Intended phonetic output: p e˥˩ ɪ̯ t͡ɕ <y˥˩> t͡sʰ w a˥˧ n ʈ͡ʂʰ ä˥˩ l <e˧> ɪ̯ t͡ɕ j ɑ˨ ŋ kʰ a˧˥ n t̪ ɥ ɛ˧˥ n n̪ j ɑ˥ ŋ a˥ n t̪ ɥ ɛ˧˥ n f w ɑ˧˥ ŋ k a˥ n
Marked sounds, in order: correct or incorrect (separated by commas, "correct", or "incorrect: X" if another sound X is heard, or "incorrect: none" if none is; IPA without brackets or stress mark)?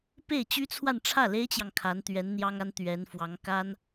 incorrect: y˥, incorrect: e˥